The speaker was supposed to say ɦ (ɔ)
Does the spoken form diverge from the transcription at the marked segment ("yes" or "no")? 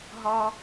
no